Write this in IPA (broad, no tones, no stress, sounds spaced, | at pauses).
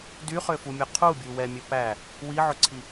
d y χ ø f u mʲ ɵ qʰ u bʲ u w ɛ mʲ ɵ p æ | w i ʕ ɵ ǀʰ i